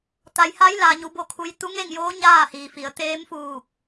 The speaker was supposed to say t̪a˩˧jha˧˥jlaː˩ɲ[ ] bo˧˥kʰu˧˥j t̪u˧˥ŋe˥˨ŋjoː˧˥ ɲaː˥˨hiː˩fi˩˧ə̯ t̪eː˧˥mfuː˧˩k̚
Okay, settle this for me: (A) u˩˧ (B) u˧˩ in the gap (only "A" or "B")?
A